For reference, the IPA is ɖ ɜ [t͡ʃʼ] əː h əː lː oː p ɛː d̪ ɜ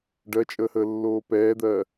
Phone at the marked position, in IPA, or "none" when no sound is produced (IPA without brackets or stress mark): t͡ʃʼ